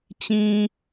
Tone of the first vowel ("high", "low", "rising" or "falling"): low